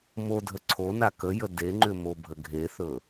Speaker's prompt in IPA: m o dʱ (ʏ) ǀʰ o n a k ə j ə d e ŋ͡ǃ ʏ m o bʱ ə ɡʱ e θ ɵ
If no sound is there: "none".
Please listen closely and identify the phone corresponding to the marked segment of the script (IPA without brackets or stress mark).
ə